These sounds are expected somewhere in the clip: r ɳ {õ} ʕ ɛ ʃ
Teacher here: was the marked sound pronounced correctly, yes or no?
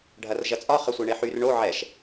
no